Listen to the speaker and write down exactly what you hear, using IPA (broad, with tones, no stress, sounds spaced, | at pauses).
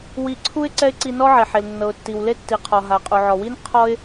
w i˧ ǀʰ u˥ ɪ̯ ǀ ɛ˥ ɪ̯ ǀ i˧ n ɔ˥ ʕ e˩ ħ e˩ l nː ɤ˩ ʊ̯ tː i˩ w l e˥ tː i˩ qʰ ɔ˩ ɦ a˩ qʼ u˩ ʕ ɔ˩ w i˥ n qʰ ɔ˧ ɪ̯